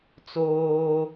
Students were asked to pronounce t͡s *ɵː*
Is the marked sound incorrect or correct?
incorrect